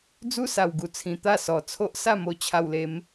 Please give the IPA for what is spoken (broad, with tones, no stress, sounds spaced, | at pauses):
d͡z u˦ s a˨˩ w ɡ u˨˩ t͡sʰ ĩ˨˩ t̪ a˥˧ s ɔ˨˩ t͡sʰ o˦ ʔ s a˥˧ m o˧ t͡ɕʰ a˧ w l e˧ m